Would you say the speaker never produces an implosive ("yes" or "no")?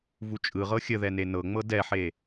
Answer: yes